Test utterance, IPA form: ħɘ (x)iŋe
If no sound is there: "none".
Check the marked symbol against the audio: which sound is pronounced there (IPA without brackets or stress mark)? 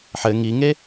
ŋ